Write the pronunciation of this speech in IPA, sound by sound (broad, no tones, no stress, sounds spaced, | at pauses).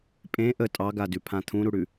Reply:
pʼ ẽ ʔ ə tʼ ɑ ɡ a d ʉ pʰ ã t̪ʰ ũ ɾ u ɽ ʉ